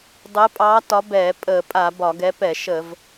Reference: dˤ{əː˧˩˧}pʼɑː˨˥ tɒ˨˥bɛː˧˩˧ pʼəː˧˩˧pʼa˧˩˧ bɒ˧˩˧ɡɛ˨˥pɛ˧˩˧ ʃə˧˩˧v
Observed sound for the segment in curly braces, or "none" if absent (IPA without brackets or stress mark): əː˨˥